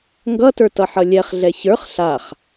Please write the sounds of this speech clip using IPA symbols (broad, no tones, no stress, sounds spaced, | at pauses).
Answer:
ŋ ɡ ʌ t ə˞ t ʌ ħ ʌ lʲ ɛ χ ɮ ɛ ç ə˞ χ ɬ a χ